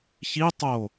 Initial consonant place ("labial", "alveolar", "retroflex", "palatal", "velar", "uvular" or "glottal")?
palatal